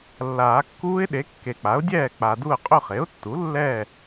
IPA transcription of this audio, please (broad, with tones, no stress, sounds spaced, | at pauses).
lː aː˨˩˦ kː uː˦˥ ɪ̯ ɗ e˩˥ kː e˨ k͡p a˩˥ ʊ̯ dʲ ɛː˥˨ k͡p a˨ d u˥˨ ə̯ qʼ ɵ˥˨ χ e˩˥ ʊ̯ tː u˩˥ lː ɛ˥˨